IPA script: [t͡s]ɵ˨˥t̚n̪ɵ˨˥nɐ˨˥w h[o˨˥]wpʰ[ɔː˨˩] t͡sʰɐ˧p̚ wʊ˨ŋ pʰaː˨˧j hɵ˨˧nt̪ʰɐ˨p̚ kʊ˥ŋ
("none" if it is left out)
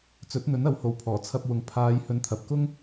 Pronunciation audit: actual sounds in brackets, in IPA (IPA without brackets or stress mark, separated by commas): t͡s, o˨˧, ɔː˨˩